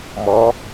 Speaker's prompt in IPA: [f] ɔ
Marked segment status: incorrect: m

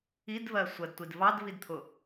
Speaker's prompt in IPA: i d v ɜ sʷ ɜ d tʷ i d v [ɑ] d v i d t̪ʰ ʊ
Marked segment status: correct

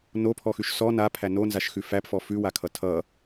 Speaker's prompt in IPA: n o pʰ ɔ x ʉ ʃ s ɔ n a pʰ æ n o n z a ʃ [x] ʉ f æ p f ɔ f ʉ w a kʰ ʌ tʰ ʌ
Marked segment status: correct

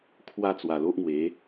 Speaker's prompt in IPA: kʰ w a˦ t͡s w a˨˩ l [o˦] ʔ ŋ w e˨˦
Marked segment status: correct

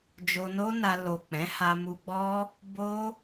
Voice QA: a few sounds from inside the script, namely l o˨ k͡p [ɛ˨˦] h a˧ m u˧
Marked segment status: incorrect: ɛ̃˨˦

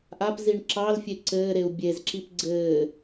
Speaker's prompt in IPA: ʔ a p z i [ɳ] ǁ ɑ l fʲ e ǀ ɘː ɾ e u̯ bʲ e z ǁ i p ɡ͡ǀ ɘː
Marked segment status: correct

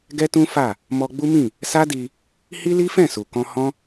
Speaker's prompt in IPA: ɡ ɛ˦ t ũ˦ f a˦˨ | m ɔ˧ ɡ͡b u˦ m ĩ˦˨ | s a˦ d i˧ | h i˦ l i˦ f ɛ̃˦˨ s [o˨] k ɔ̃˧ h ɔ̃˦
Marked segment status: incorrect: u˨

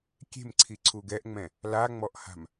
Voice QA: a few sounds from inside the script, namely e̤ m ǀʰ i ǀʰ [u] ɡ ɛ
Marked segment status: correct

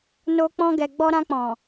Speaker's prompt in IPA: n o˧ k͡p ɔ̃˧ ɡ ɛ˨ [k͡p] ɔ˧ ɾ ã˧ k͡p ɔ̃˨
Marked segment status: incorrect: ɡ͡b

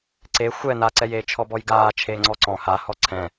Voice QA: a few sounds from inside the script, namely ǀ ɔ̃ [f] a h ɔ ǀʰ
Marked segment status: incorrect: h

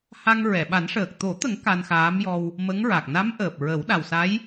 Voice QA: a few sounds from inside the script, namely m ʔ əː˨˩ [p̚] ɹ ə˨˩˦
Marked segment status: correct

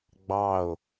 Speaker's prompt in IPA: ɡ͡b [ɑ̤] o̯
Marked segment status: incorrect: ɑ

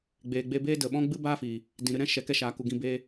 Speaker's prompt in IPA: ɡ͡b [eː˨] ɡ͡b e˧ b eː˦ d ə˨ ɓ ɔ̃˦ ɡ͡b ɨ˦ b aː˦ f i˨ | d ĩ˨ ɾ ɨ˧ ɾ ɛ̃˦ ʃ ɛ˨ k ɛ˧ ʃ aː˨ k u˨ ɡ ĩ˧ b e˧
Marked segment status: correct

